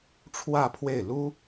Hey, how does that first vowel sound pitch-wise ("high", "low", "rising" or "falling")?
falling